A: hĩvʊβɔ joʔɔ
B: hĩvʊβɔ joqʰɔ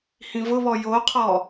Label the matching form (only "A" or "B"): B